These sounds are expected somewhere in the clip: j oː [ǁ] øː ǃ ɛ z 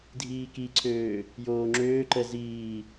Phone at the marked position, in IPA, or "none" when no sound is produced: ŋ͡ǁ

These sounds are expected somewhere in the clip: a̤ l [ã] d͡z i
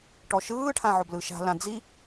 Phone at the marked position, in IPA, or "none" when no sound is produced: ã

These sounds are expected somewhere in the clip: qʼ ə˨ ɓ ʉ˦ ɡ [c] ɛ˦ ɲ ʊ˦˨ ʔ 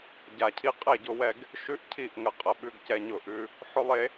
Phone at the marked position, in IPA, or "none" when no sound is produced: c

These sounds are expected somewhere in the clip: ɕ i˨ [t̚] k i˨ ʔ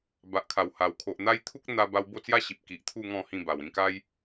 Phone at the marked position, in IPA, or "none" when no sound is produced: p̚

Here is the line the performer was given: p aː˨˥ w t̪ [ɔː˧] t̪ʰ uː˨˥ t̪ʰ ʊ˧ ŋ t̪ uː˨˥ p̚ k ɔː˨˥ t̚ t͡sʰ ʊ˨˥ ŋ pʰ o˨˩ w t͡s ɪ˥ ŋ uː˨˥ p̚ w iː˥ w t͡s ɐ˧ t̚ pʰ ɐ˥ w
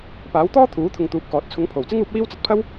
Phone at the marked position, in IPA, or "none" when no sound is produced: ɔː˥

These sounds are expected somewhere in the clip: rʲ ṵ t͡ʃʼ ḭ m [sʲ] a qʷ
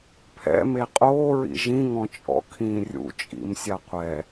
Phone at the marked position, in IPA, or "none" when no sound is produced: sʲ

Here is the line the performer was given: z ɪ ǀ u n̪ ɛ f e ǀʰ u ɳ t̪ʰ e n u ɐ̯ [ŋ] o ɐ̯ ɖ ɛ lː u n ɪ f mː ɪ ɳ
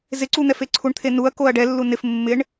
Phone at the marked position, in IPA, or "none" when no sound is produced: k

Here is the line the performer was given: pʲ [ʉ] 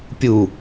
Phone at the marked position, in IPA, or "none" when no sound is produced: u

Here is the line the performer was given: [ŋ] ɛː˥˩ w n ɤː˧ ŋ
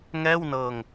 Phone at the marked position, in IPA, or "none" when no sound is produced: ŋ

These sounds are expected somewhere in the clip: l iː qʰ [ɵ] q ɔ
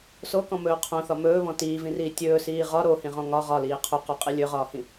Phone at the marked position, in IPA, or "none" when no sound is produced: ɵ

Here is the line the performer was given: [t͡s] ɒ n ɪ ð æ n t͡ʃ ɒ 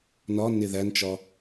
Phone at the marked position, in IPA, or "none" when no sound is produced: n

